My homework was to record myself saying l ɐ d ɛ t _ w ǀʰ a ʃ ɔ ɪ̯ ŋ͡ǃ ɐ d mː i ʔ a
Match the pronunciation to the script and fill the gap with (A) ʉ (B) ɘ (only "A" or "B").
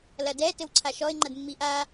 B